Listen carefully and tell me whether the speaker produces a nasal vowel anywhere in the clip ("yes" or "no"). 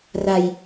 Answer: no